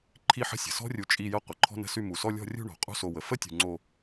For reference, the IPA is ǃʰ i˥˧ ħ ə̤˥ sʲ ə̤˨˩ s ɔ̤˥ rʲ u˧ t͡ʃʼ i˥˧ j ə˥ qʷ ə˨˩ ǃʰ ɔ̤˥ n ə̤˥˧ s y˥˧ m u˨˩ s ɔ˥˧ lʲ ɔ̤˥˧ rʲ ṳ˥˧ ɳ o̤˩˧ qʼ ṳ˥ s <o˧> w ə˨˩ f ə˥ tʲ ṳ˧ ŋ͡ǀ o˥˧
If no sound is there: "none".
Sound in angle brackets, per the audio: o˧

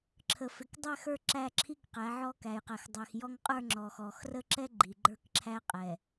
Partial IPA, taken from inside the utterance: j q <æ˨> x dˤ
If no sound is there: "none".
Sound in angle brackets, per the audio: æ˨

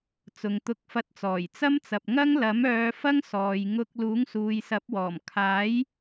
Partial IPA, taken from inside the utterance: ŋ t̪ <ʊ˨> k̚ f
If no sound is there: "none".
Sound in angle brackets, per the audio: ʊ˧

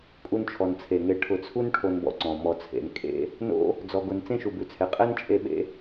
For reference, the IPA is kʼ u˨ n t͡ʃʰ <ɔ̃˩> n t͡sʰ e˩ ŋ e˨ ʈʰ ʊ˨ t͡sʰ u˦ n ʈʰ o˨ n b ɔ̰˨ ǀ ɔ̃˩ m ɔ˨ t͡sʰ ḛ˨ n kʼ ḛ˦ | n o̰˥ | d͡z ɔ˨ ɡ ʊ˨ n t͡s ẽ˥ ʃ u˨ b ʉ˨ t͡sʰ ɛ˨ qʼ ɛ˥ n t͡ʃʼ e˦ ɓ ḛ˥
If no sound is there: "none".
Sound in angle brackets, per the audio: ɔ˩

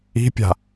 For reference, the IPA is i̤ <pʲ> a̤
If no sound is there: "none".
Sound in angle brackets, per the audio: pʲ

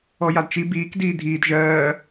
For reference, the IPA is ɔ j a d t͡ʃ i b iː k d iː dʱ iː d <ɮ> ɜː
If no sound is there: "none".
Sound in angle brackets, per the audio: ʒ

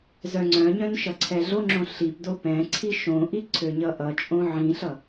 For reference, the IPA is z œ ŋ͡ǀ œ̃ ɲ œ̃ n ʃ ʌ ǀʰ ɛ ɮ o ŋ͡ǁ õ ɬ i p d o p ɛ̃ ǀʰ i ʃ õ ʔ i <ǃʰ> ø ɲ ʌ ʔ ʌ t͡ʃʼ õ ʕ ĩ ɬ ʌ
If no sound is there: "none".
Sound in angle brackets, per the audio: ǀʰ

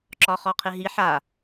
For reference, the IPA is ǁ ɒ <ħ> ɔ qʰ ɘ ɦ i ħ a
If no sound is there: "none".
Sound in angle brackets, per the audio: χ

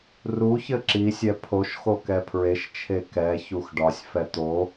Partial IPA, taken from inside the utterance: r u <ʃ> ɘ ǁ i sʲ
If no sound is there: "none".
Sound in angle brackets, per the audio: ç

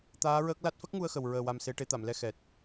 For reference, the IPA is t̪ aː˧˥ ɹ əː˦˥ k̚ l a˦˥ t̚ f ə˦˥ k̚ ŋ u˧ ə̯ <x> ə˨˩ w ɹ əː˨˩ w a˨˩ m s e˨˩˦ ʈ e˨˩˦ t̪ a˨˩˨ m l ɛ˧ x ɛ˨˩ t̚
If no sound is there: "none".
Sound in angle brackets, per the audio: x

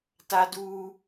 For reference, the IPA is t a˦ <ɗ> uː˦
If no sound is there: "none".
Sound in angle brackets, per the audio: d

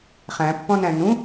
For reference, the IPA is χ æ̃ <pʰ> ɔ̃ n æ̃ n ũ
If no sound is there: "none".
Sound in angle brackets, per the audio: pː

